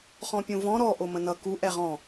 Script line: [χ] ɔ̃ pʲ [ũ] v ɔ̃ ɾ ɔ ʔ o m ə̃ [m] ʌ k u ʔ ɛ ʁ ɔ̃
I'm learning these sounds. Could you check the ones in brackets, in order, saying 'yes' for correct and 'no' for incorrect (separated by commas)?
yes, yes, no